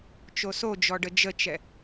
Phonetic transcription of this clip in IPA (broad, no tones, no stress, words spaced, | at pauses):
t͡ʃosod͡ʒɔɖə d͡ʒət͡ʃɛ